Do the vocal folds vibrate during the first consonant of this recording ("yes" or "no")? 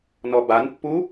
yes